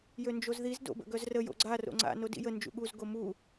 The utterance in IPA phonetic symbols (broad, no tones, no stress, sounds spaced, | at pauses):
j ø n d͡ʒ o z ð i z d o̰ b ə̰ ɡ œ z r ə j o̰ ɡ͡ǀ a r o̰ ŋ͡ǀ a̰ n o d ḭ j ə n d͡ʒ ṵ ɠ u z ɡ o m u